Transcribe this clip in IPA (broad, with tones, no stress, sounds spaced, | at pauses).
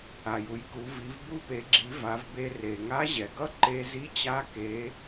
a˩ j u˩ j k u˩˧ v i˩˧ v b u˧ p e˩˧ ɡ͡ǁ i˩˧ v a˩˧ v b e˧ r e˩ ŋ a˧˥ ʑ ɛ˩ ɡ ʌ˥ ǃ e˧ z i˧˥ t͡ɕ a˧˥ k e˩˧